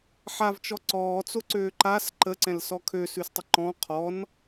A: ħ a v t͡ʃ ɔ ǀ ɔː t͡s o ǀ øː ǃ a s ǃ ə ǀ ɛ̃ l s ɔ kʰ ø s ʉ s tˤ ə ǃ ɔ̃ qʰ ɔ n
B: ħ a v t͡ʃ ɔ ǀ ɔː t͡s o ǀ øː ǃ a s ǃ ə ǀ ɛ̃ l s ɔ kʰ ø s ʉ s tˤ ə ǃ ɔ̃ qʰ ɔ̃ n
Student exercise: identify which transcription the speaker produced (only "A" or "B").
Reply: A